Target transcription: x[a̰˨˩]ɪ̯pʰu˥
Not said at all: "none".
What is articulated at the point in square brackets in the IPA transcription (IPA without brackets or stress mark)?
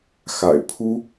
a̰˨˩